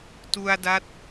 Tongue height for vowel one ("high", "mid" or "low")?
high